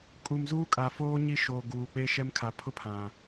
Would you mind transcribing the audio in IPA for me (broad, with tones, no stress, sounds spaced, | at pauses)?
kʼ u˨ m z uː˦ kʼ a˨ f oː˦ ɲ i˦ ʃ oː˨ ɡ uː˨ k͡p e˦ ʃ ɛ˦ m kʰ a˨ pʰ ʊ˦ pʰ ã˨